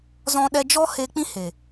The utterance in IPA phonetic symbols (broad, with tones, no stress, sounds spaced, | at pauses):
z ɔ̃˦ ɗ ɛ˦ d͡ʒ ɔ˦ h e˧ k͡p ĩ˦ h e˨